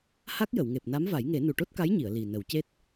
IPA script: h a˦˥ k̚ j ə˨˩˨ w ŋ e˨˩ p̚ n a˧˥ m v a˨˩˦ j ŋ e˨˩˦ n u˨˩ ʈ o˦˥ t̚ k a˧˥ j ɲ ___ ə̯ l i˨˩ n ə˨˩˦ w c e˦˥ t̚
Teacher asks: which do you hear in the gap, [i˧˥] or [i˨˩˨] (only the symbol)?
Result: i˨˩˨